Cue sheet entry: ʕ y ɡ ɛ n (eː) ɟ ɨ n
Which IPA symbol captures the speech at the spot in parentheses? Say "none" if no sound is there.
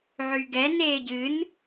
eː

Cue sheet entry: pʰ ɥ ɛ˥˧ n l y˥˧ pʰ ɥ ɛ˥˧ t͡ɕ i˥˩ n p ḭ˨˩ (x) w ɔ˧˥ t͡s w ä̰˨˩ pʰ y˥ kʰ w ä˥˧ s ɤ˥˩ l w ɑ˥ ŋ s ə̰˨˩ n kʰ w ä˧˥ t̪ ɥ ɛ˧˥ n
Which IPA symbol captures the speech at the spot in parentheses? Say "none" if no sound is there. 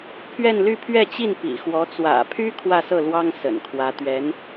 x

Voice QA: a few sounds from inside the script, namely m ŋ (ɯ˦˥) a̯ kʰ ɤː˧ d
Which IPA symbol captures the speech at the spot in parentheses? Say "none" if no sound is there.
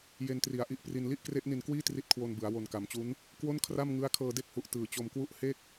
ɯ˦˥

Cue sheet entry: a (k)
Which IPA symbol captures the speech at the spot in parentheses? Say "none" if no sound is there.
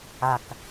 k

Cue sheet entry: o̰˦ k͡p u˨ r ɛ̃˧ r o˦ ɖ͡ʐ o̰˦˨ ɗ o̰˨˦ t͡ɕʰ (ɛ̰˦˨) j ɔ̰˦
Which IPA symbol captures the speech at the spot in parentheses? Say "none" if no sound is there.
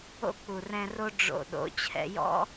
ɛ̰˧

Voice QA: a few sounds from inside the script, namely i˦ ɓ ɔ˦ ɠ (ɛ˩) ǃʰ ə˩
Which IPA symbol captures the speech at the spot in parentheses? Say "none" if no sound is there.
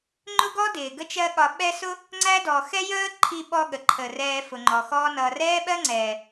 ə˩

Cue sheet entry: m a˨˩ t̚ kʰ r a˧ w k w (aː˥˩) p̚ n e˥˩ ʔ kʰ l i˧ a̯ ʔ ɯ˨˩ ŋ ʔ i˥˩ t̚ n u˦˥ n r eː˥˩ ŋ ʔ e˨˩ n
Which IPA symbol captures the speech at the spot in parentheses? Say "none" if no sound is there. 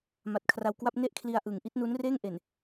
a˥˩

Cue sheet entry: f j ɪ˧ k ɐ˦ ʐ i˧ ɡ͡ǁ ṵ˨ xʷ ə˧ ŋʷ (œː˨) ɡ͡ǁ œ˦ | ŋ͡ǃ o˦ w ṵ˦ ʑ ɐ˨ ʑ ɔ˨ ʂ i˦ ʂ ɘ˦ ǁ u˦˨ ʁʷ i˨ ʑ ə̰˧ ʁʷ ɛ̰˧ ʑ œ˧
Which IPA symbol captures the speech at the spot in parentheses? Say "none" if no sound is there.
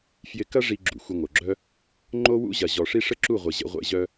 œ˨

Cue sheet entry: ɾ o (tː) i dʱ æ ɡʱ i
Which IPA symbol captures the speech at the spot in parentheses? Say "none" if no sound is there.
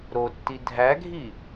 tː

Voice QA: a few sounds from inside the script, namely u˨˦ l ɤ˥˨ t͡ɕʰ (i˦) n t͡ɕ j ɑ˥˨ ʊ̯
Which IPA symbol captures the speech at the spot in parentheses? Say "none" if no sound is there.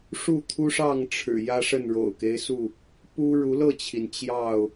i˩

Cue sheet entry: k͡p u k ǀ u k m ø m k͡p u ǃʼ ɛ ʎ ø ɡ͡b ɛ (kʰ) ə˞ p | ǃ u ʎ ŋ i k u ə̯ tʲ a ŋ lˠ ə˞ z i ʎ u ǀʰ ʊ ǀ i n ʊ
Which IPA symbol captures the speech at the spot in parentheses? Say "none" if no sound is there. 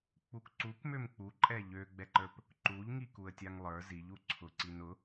ǃ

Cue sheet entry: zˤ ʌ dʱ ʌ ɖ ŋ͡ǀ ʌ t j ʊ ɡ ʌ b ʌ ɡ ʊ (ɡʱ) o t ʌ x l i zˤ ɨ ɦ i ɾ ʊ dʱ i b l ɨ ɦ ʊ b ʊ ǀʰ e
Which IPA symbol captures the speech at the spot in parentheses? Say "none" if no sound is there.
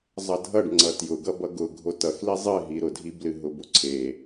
ɡʱ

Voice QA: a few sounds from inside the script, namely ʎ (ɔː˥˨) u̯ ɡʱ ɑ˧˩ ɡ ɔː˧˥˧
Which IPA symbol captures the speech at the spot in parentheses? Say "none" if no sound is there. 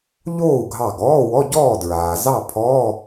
oː˥˨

